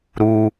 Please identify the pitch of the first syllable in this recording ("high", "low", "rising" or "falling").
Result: high